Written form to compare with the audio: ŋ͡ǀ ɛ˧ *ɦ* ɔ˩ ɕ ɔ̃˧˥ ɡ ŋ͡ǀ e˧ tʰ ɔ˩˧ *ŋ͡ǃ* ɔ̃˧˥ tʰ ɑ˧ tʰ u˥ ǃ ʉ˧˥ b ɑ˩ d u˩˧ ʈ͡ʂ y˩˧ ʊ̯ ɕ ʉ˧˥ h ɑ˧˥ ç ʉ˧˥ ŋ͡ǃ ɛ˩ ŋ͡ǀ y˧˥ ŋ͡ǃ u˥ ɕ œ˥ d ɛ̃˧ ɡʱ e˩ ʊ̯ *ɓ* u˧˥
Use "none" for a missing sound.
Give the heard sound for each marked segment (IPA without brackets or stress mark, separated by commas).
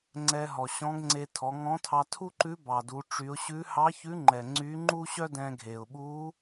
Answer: ɦ, ŋ, ɓ